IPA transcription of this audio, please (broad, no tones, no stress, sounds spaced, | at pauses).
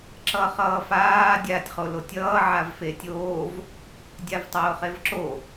ǁ ʌː χ ʌː f aː dʲ aː tʲ χ o l o tʲ ʌː ʕ a v f eː tʲ oː v | dʲ a v tˤ oː χ e v ǁ o